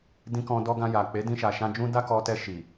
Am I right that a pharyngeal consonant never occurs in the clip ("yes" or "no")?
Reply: yes